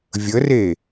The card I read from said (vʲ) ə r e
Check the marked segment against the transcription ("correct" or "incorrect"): correct